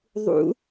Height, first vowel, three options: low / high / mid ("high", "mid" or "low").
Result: high